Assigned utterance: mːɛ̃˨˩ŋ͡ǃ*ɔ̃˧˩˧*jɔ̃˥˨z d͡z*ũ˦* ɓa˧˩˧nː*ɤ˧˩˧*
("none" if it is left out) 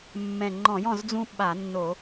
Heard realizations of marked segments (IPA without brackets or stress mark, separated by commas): ɔ̃˧˩˧, ũ˦, o˧˩˧